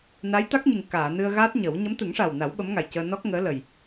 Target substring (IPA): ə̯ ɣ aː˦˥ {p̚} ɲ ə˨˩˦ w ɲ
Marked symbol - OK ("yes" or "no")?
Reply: no